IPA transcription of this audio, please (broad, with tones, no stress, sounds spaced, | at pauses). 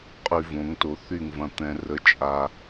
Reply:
qʼ y˧ v õ˨˦ ŋ t o˧ θ y˦˨ ŋ v ɐ̃˧ t̪ ɛ̃˧ r ə˧ t͡ʃʼ a˧